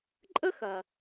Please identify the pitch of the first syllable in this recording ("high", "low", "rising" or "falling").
high